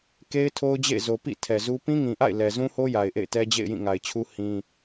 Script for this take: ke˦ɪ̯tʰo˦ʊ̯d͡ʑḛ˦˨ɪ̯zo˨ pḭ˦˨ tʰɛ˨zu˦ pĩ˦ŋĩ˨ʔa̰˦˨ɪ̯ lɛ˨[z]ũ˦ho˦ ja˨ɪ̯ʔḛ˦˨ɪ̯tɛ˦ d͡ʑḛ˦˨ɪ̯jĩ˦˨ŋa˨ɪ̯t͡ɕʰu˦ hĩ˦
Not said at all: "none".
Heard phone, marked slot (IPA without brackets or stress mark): z